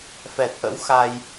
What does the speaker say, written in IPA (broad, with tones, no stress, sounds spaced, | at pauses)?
f ɛ˨˩ t̚ ʔ ə̰˧˥ w x a˧ j